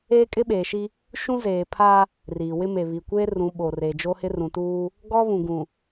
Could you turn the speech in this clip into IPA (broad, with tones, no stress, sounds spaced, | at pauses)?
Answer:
eː˦ kʼ ɪ˦ ɓ eː˨ ʃ i˦ | ʃ ũ˦ z eː˨ pʰ a˦ | r iː˨ w ɪ˦ m e˨ β i˨ kʷ eː˦ r ũ˨˦ ɓ o˨ r e˨ d͡ʒ o˦ h ɪ˦ r ũ˨ t uː˦ | ɡ ɔ˦ β ũ˨ ɡ ũ˨